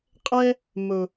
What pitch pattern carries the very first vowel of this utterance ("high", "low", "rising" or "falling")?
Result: high